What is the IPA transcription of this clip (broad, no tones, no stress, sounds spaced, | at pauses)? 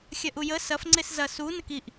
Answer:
xʲ ɐ ʔ u j ə s ɐ f ŋ͡ǀ e s z ɐ s u n ə k i ʔ